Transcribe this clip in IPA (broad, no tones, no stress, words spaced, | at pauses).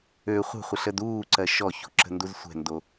ø χʷə̤χʷəɬəd uːǀɜ ʃɔço̤ǁə̤nduz sʷɛ̤ndo